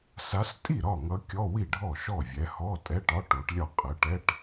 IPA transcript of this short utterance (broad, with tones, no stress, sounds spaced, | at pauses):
s a˨˦ s tʼ i˥˩ ɾ ɒ˥˩ ŋ ʌ˨˦ kʲ ɔ˧˥˧ w i˥˩ ɖʱ ɔ˥˩ ʃ ɔ˥˩ vʲ ɛ˨˦ h ɔ˧˥˧ tʼ ɛ˧˥˧ ʈ ɒ˧˥˧ ʈ o˨˦ ʈ lʲ ɒ˥˩ qʼ ə˨˦ ʈ ɛ˧˥˧ ʈ